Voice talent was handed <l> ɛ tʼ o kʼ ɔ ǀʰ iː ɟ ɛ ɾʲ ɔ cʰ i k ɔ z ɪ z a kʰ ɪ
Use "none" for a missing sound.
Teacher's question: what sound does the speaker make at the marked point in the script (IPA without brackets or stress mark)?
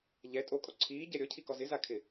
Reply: ʎ